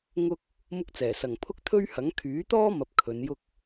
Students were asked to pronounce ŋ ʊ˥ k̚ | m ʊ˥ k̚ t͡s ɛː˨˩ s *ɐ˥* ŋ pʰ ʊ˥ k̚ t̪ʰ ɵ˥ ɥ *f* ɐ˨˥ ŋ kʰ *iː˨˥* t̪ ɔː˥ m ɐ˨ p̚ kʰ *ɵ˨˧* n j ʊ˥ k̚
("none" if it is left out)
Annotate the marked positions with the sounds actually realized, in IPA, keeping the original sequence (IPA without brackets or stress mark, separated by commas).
ɐ˨˩, h, yː˨˥, ɵ˨˧